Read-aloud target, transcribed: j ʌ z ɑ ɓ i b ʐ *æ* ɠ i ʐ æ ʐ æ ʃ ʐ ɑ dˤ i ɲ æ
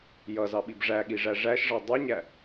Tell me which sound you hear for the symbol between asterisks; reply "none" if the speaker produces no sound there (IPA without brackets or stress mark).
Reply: æ